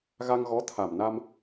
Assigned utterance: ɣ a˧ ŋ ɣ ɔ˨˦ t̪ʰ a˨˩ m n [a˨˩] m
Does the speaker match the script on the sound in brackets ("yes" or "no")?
no